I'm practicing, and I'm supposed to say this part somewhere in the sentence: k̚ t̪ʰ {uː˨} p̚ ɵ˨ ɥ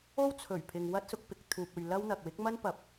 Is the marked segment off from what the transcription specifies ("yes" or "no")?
no